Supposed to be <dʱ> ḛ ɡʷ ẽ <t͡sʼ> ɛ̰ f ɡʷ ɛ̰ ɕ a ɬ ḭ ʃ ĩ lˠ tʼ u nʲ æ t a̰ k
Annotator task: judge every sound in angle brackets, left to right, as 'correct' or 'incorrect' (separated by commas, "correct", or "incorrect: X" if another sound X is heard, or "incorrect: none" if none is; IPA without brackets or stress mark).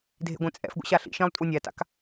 correct, correct